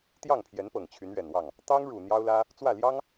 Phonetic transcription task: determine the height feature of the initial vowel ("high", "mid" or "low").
low